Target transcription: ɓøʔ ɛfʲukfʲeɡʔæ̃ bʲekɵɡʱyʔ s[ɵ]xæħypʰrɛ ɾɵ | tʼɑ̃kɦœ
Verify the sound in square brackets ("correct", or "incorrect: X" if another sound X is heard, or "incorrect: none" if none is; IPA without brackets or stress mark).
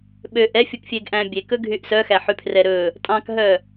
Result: incorrect: œ